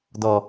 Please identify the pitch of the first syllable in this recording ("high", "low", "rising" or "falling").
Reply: low